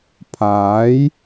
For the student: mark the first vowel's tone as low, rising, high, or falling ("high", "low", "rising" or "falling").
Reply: rising